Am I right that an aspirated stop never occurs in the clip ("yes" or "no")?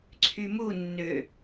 no